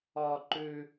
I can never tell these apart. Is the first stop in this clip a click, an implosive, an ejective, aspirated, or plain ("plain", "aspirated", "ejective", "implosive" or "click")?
click